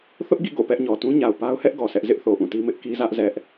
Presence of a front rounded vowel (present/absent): absent